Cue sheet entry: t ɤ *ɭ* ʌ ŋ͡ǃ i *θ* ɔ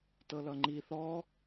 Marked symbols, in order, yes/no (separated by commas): no, yes